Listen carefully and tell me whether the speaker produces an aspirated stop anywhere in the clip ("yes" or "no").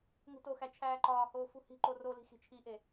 yes